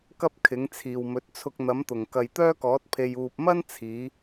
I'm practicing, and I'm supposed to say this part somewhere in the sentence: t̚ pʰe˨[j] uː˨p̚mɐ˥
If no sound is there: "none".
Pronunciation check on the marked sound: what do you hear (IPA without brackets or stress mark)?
j